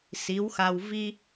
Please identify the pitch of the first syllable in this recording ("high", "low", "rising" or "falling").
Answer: rising